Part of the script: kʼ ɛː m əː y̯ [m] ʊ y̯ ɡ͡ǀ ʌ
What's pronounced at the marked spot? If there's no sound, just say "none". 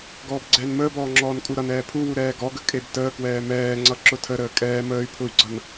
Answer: pʰ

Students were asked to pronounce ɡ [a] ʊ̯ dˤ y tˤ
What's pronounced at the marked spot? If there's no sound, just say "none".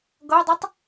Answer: ʌ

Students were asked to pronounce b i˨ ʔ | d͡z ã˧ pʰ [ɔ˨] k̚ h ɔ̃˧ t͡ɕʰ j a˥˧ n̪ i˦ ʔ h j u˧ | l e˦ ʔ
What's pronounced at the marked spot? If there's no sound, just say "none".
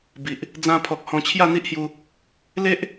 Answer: ɔ˨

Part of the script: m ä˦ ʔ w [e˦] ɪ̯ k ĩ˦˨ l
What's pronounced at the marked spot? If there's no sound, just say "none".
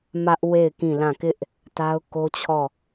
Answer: e˦˨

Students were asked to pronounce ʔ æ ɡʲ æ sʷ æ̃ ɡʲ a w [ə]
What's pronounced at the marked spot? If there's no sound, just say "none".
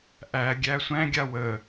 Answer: ə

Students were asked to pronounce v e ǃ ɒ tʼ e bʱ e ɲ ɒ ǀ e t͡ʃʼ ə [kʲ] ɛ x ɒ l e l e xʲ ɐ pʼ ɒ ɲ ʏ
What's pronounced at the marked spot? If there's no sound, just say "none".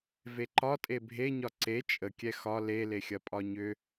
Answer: kʲ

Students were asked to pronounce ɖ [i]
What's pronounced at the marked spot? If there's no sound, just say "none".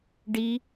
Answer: i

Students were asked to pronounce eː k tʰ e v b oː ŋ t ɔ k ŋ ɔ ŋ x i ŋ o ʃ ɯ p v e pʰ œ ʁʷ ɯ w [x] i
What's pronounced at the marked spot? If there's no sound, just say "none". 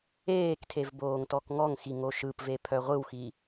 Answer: x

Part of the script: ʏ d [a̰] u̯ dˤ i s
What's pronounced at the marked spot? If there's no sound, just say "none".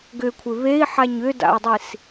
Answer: a̰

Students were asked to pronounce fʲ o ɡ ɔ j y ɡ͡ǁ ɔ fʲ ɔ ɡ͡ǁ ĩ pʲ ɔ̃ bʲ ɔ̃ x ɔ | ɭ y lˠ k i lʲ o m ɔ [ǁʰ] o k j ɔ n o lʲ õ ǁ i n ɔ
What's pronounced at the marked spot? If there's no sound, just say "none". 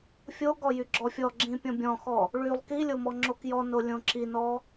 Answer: ŋ͡ǁ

